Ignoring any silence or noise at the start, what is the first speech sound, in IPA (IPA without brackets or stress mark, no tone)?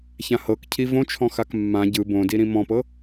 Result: ç